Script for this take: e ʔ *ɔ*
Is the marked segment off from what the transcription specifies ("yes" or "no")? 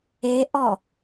no